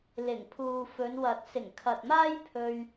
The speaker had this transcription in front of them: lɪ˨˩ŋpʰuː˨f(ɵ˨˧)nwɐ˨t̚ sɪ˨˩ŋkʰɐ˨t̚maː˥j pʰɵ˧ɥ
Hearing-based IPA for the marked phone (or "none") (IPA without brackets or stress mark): ɵ˨˧